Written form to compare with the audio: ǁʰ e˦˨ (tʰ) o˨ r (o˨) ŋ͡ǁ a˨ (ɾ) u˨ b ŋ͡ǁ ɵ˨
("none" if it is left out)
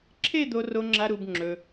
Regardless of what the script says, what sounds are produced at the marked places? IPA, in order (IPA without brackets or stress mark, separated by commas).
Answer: d̪, o˨, ɾ